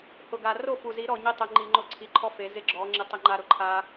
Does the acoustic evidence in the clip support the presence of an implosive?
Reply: no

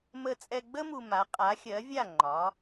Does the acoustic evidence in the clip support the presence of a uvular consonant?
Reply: yes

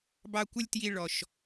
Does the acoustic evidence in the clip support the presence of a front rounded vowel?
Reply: no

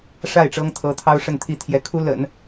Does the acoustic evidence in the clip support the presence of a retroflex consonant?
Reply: yes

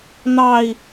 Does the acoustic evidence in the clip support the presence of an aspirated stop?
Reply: no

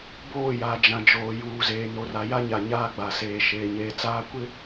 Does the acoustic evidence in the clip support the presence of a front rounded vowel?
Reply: no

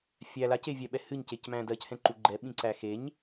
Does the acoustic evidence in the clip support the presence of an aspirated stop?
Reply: no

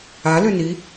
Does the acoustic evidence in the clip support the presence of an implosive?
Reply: no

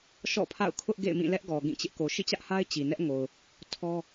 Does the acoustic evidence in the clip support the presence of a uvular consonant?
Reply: no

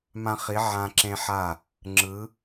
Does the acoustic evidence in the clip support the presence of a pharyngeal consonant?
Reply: yes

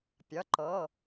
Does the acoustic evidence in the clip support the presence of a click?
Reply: yes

